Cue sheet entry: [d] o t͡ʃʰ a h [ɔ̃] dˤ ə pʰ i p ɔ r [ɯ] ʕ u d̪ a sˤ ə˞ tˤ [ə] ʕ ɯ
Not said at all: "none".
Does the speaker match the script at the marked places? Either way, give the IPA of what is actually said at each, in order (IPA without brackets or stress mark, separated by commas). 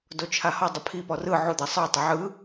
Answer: d, ɔ, ɯ, ə